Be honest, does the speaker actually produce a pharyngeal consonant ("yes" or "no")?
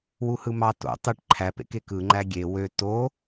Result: no